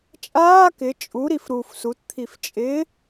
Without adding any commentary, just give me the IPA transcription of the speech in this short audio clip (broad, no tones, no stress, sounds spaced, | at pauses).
t͡ʃʼ aː k ɪ t͡ʃʼ u ɾ i f ɾ u f s u t t̪ʰ i f t͡ʃʼ ɪ